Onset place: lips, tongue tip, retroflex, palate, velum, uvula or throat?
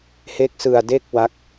throat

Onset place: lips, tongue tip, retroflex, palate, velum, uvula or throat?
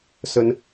tongue tip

